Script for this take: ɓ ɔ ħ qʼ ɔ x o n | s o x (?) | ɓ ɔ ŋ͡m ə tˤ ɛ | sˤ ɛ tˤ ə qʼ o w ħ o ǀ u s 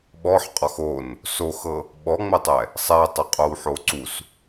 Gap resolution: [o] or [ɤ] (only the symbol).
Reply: ɤ